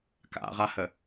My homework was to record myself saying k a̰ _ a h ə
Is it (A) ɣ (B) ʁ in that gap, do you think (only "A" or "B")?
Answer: B